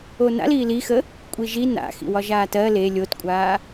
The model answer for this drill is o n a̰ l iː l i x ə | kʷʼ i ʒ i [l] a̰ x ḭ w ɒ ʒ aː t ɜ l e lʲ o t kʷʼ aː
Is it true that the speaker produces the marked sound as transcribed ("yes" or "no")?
no